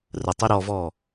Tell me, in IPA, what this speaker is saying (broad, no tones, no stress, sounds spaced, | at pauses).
r ə tˤ i ɾ ɔ v ɔ